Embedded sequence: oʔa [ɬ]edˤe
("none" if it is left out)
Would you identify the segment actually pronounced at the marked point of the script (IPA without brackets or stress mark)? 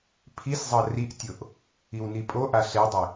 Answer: ɬ